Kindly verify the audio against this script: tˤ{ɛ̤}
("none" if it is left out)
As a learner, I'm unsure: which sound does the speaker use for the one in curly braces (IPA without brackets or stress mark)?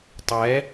ɛ